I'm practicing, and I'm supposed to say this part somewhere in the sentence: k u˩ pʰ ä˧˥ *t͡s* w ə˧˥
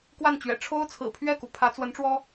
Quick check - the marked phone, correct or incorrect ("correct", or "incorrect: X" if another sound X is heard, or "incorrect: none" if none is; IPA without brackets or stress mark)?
correct